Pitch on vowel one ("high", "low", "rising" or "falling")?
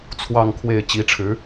falling